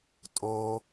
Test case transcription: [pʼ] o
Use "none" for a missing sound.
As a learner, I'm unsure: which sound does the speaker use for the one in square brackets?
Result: tʼ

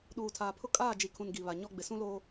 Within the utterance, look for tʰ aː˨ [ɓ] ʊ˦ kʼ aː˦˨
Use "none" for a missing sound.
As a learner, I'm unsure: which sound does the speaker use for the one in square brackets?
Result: pʰ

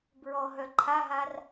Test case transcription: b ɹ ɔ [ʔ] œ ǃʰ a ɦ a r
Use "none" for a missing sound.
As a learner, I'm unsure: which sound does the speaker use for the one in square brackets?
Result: ɦ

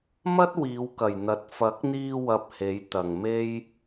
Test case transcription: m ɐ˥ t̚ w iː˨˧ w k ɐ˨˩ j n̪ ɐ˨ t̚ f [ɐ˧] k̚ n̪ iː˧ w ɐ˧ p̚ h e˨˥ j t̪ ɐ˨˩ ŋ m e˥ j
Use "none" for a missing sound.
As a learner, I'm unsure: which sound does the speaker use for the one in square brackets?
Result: ɐ˨˥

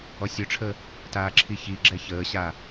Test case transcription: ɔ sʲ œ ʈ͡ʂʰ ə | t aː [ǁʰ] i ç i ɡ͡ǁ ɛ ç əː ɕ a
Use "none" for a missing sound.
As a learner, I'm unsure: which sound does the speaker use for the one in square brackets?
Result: ǁʰ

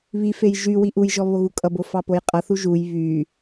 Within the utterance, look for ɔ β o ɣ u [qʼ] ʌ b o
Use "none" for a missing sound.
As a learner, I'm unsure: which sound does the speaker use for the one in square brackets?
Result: kʼ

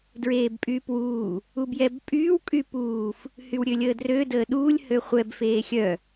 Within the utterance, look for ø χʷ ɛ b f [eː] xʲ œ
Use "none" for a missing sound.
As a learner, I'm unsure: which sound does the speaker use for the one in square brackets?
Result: eː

